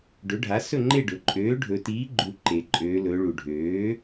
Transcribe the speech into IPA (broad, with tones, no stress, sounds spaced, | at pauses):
ɖ ɵ˩˥ ɖʱ a˩˥ s ɵ˥˨ ŋ͡ǃ e˥˨ ɖ ɵ˩ ǃʼ øː˩˥ ɖʱ ɵ˩˧ t iː˩˥ ɡ͡ǃ u˩˧ ǃ eː˩ ǃʼ øː˩˧ l ɵː˩˧ ɭ u˩ ɖʱ øː˩˥